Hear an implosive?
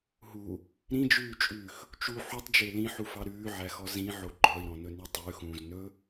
no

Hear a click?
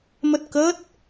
no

